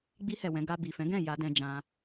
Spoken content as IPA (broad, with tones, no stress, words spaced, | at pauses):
ɡ͡bi˧hɛ˨ wɛ̃˨˦ɡa˧ bi˨fɛ̃˨˦ɡɛ̃˦˨ ja˨˦dɛ̃˧ d͡ʒã˧